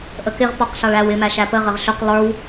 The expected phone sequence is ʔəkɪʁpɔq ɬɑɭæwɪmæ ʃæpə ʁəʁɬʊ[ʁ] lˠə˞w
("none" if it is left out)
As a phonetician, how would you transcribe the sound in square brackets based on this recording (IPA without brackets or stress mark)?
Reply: q